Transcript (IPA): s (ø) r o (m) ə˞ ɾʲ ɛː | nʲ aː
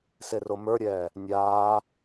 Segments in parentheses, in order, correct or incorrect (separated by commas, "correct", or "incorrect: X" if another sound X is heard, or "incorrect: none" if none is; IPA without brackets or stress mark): incorrect: e, correct